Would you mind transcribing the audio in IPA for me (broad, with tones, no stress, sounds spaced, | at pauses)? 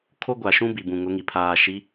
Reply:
kʰ o˦ ɡʷ a˨ ʃ ũ˦ b i˨ b ũ˨ ŋ ʊ˨˦ ŋ i˨ pʰ aː˨ ʃ i˨˦